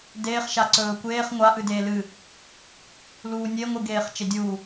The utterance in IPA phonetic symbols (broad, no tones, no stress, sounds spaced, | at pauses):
d eː χ ʃ a ǀ ɵː kʷ eː χ ŋʷ a ʔ ɨ d eː l ɨ | l uː nʲ e ŋʷ ɨ ɡ eː χ t͡ʃ e dʲ uː